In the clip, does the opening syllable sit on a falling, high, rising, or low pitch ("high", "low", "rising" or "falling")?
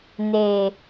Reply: low